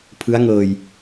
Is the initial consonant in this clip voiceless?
yes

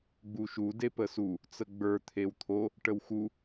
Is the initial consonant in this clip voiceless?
no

